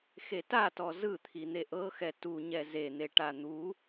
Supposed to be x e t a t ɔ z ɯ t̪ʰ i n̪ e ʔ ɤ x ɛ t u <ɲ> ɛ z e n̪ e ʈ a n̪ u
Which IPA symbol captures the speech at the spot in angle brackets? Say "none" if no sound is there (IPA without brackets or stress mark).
ɲ